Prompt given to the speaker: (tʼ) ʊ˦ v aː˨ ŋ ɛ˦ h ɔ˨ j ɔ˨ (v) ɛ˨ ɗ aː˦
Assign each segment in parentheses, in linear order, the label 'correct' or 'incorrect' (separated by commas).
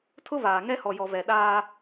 incorrect, correct